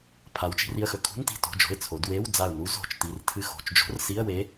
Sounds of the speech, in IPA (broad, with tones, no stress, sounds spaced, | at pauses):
pʰ a˩˧ w t͡ʃ i̤˩˧ r i˩˧˩ ə̯ x ɵ˧˩ kʰ ṳ˧˥˧ n t i̤˧˩ t o̤˩˧˩ d͡ʒ o̤˩˧˩ ɪ̯ t͡sʰ o˩˧ d w e˧˥˧ w d͡z a˧˩ ʊ̯ n u˧˥ z o̤˩˧˩ t͡ʃ t i˩˧˩ r tʰ ɨ˧˩ x o̤˩˧˩ t͡ʃ d͡ʒ o̤˧˥ r s i˧˥˧ ə̯ w e˧˥